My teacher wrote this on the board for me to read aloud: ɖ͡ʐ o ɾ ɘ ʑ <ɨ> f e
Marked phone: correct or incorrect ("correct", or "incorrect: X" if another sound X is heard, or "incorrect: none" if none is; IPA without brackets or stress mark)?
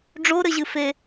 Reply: correct